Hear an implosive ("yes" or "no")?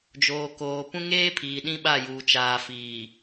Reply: yes